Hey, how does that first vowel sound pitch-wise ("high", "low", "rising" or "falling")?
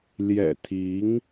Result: low